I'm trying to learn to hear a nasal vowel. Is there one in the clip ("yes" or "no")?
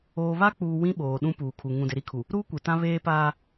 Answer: yes